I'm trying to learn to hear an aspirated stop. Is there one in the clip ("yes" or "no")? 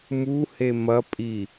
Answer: no